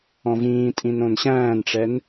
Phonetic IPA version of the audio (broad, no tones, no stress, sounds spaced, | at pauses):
ɔ̃ v ĩː tʼ ĩ n õ n ɕ æ̃ː n ʈ͡ʂ ɛ n